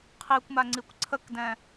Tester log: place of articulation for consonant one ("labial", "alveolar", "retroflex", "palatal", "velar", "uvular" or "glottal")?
uvular